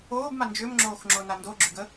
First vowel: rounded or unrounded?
rounded